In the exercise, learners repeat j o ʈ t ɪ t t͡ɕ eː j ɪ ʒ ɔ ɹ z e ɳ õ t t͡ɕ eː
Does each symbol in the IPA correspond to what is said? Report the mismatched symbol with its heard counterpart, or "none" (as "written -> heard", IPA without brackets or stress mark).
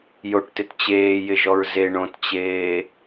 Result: none